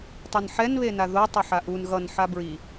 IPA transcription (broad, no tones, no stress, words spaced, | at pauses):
tˤʌnħɛn βenaðo tˤʌħaʔun ɣʌn ħabɹi